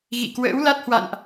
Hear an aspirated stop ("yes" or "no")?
no